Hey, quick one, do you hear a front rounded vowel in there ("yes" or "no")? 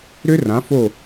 yes